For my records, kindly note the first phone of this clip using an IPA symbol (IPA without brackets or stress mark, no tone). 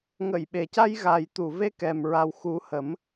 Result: ŋ